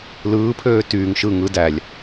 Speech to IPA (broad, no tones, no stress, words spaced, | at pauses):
lɯːpʰøː tyːŋ ʃɯ ŋɯ dælʲ